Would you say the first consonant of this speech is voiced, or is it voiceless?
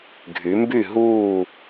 voiced